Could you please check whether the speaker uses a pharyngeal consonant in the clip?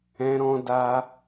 no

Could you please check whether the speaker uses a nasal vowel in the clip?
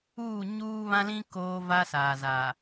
yes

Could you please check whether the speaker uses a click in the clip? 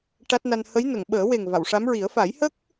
no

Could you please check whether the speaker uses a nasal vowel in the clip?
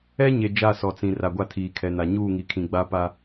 yes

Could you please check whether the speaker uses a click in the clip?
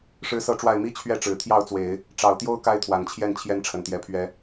no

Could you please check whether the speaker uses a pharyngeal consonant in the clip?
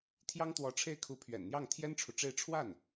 no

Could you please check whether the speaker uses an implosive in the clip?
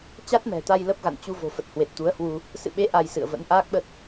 yes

